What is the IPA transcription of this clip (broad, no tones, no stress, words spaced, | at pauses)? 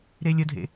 ɾelʲədʱḛ